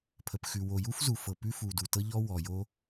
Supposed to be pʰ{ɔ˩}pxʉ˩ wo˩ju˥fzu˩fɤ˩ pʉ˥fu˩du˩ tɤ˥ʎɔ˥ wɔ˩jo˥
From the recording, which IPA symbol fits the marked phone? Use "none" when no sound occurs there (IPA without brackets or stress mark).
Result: ə˩